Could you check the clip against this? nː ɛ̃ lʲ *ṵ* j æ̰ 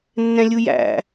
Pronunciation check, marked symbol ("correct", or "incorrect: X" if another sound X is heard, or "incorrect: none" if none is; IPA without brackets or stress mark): incorrect: u